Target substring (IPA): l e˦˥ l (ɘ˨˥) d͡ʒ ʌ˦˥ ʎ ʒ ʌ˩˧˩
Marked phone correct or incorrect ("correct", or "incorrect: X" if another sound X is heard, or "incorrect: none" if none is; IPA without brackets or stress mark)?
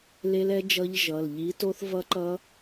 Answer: incorrect: ɛ˨˥